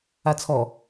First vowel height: low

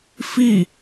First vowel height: high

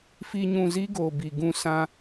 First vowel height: high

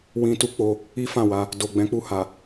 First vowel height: high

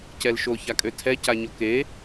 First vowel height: mid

